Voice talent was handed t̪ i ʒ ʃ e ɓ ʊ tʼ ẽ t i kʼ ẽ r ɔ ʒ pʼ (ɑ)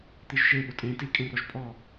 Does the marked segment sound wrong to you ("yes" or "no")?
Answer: yes